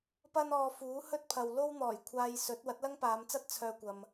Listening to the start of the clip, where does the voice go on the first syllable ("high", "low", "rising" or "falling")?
high